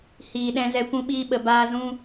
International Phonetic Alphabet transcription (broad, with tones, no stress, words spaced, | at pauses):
hiː˨ɗɛ̃˧zɛ˧ kʷũ˦ɓiː˦ ɓə˨baː˧ zũ˦